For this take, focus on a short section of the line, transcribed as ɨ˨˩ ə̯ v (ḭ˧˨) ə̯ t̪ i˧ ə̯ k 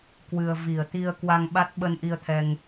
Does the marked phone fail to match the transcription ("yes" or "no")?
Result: yes